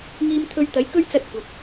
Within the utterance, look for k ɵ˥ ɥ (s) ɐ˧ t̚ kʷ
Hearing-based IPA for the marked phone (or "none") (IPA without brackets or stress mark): t͡s